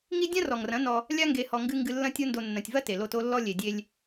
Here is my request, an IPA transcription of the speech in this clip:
ŋ i˦ dʲ ã˦ r ɔ˨ ŋ r ɐ̃˨˦ n ɔ˧ | lʲ a˧ ŋ ɡ e˨ h ɔ˨ ŋ ɡ ɨ˧ ŋ ɡ ɨ˧ lː ɐ̃˦ tʲ o˦ n d o˧ nː ɐ̃˨ tʲ v ɐ˦ t e˨ l o˧ t o˦ lː ɔ˦ lʲ e˨ dʲ e˧ lʲ

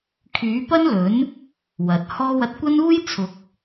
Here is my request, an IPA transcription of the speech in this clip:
kʰ yː˨˥ p ɐ˥ n l ɵ˨˥ n | w ɐ˨ t̚ h ɔː˥ w ɐ˧ t̚ kʷ ɐ˥ n uː˥ j t͡sʰ ʊ˨˥ k̚

